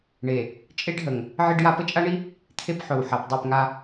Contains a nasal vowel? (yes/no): no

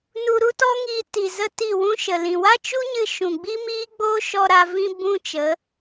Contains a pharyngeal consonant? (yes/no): no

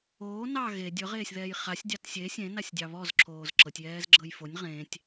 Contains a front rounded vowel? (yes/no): no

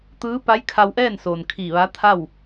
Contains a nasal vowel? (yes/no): no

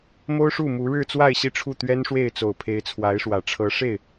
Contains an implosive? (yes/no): no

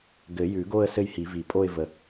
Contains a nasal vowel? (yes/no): no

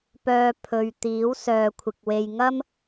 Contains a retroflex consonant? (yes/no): no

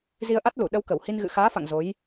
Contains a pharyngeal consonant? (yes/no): no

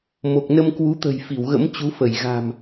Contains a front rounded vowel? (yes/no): no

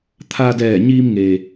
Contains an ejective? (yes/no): no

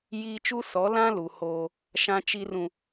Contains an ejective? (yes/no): no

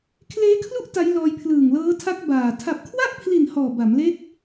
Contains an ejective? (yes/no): no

